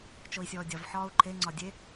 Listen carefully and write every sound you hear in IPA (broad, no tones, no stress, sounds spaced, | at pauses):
t͡ʃ o i̯ sʲ ɔː dʲ ɒ v ħ ɒː u̯ ǃʰ e ŋ͡ǀ ɒ dʲ e